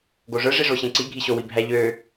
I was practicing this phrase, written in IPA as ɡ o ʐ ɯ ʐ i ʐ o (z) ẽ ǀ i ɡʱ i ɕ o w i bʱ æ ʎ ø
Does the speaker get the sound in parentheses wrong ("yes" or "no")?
yes